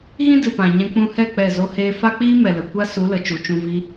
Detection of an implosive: absent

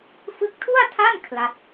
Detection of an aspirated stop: present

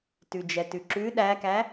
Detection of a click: present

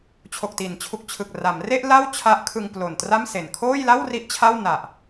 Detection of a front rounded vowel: absent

